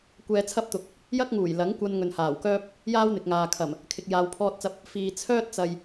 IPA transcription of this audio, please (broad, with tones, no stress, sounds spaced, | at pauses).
kʷ ɛː˧ t͡sʰ ɐ˥ p̚ t̪ ʊ˨˥ k̚ | j ɐ˥ k̚ ŋ uː˨˩ j l ɐ˨˥ ŋ kʷ ɐ˧ n ŋ ɵ˨ n h aː˨˩ w k œː˥ p̚ | j aː˥ w n̪ ɪ˨ k̚ ŋ aː˨ kʰ ɐ˨˩ m | kʰ ɪ˨ k̚ j aː˨ w pʰ ɔː˧ t̚ t͡s ɐ˧ p̚ | f iː˨ t͡sʰ œː˥ t̚ t͡s ɐ˨ j